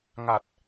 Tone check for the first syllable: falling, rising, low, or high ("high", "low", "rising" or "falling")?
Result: low